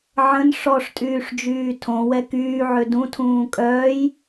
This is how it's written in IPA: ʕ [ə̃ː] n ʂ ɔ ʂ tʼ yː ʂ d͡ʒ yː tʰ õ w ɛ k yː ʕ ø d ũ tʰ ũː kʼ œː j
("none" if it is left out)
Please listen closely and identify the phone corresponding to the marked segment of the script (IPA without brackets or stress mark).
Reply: ə̃